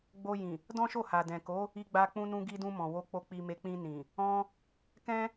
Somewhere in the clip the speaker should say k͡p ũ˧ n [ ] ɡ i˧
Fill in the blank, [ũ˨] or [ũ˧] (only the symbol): ũ˧